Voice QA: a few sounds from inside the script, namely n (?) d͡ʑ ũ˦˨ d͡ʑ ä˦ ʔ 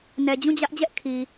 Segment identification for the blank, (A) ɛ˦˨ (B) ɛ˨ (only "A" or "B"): B